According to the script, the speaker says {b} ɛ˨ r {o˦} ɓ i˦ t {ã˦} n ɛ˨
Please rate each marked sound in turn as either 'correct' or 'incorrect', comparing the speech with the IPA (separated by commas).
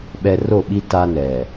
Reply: incorrect, incorrect, incorrect